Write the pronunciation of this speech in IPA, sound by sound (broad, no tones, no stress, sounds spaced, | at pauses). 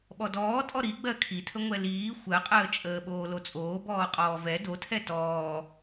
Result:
ɓ ɔ d ɔː tʼ ɔ ɾ i ɡ͡b ɜ kʰ i tʰ ə ŋʷ ɛ l iː xʷ ɜ qʼ əː t͡ʃʼ əː ɓ oː l o t͡sʼ oː b ɔː qʼ ɔː v ɛ d o tʰ ɛ t ɔː